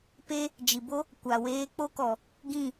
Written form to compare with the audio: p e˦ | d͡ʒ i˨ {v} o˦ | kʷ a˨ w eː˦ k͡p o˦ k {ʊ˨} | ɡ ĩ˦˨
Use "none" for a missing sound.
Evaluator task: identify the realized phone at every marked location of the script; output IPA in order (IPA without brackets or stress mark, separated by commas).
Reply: b, ɔ˨